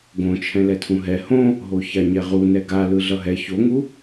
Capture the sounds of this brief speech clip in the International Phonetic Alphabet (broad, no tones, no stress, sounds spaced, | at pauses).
ɡ õ t͡ʃʰ ɛ̃ l ɛ tʰ ũ ɦ ɛ h õ | ɦ o ç a ɲ ɛ ʁ u n ɛ ɡ a l ɯ ɮ ʌ ɦ ɛ ç o ŋ u